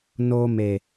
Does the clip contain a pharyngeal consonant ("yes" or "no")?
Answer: no